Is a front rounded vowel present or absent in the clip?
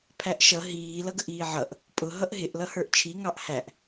absent